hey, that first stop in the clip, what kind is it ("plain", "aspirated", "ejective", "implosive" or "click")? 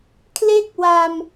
aspirated